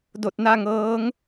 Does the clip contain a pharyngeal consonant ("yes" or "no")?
no